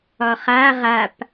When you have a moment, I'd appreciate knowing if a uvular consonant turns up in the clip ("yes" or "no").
yes